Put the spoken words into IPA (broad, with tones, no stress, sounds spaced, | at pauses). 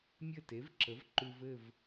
mʲ ɘ˥˨ t e˩˥ v ǁ ə˩˥ v ǃ ʉ˧ v ɘ˥˨ v